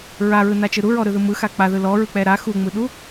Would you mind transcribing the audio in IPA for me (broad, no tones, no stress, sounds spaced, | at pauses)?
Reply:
ɹ a ɹ ɯ n a t͡ʃ ɯ ɾ u ɹ ɔ ɾ ɯ ð ɯ m ɯ x a k͡p a ð ɯ l ɔ ɹ ɯ k͡p ɛ ɾ a x u ŋ͡m ɯ ɗ u